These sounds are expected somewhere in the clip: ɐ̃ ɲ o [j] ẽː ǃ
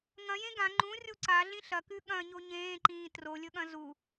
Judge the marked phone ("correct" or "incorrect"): incorrect